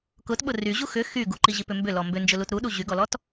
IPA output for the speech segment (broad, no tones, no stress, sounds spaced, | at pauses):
k ʊ t ɓ ʊ r y ʑ u x ʏ x y ɡ u ǃ i ʑ i p ʏ m b ʏ l ɔ m b ʏ n d͡ʒ ʊ l u t ɾ u ɗ u ʑ y ɡ ɔ l ɔ t